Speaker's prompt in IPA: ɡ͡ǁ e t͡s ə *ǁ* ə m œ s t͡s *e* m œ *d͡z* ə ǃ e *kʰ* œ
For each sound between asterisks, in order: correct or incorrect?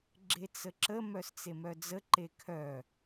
correct, correct, correct, correct

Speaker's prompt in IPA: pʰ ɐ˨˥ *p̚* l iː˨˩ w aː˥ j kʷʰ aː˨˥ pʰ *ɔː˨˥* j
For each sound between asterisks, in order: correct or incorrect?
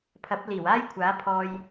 correct, incorrect: ɔː˧

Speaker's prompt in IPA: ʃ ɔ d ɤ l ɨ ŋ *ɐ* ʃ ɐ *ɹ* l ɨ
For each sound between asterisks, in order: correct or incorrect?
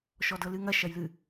correct, incorrect: j

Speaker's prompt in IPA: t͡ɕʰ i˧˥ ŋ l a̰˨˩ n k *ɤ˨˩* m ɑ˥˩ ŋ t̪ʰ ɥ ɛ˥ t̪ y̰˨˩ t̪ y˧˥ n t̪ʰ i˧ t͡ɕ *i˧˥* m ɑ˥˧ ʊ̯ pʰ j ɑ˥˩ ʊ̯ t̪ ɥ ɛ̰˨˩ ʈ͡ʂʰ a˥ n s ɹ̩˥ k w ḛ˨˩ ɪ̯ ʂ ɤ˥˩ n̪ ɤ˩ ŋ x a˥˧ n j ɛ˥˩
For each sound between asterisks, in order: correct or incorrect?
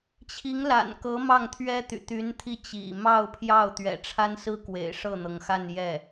incorrect: ɤ˧˥, incorrect: ḭ˨˩

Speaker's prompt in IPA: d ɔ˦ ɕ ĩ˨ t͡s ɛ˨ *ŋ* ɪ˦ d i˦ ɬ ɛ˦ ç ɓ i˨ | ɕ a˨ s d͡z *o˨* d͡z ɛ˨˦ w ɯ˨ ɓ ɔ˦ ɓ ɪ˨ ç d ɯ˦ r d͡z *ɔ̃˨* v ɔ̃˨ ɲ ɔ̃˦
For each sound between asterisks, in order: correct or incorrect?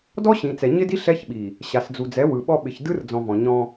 incorrect: ɲ, incorrect: u˨, correct

